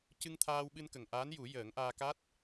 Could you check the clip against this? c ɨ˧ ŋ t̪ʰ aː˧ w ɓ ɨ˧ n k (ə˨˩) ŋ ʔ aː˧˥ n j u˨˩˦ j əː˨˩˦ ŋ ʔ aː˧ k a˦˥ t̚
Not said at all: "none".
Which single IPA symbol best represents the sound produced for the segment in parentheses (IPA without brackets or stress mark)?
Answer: ə˨˩